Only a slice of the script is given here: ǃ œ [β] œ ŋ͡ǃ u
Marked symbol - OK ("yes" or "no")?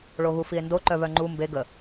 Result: yes